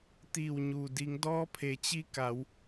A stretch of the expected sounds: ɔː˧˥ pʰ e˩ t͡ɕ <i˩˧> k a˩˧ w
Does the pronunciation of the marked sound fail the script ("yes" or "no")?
yes